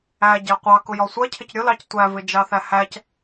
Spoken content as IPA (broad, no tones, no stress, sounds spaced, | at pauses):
æ ɟ æ qʷ ɑ k ʊ j ɒ sʷ ɜ cʰ ɪ c ɾʲ ʊ l ɑ c tʷ æ v ɪ d͡ʒ ɑ θ æ h æ c